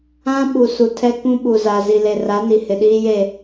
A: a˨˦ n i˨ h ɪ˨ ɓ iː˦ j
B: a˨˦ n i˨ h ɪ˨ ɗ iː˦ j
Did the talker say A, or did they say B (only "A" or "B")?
B